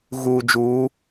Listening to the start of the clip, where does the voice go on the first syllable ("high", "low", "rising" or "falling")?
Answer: low